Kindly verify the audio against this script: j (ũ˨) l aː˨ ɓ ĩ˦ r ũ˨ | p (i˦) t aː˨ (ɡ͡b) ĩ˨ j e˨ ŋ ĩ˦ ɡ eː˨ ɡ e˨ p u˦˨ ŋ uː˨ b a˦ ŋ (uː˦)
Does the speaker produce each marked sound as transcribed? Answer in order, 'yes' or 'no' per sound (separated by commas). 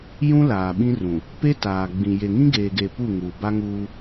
no, no, yes, yes